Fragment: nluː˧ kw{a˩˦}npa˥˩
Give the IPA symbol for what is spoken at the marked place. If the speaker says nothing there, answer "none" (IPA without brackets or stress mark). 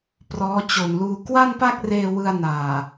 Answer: a˥˩